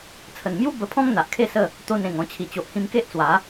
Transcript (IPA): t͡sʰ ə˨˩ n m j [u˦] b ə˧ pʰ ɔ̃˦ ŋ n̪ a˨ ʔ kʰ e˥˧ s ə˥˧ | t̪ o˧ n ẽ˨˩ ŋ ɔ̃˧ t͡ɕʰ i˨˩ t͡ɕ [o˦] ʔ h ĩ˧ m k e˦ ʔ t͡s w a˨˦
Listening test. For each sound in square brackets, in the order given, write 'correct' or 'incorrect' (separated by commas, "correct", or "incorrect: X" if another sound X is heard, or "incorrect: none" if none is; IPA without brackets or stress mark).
correct, incorrect: o˨